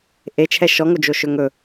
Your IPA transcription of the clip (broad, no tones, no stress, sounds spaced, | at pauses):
ʔ e t͡ʃʰ ɛ ʃ ɔ ŋ o d͡ʒ o ʃ ɵ ŋ ɵ